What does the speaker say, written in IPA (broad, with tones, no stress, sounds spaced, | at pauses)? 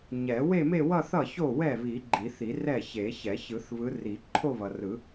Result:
ɲ ɛ˨˩˦ w e˥˧ m e˥˧ w ʌ˥˧ θ ʌ˥˩ ç o˥˩ w ɛ˥˩ β i˨˩˦ ɡ͡ǃ i˨˩˦ θ i˨˩˦ r ɛ˥˩ ç e˨˩˦ ç ɛ˨˩˦ ç ɯ˨˩˦ θ β ɯ˨˦ r i˨˩˦ ǃʰ o˥˧ β ʌ˨ r ɯ˨˩˦